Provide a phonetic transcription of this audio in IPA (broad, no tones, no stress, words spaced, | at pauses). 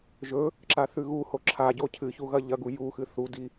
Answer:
ʒɵ | ǁaθʉɣuho ǁʰaɟo cʰɨçu ɣɐʎɐɡu juxɨ θudi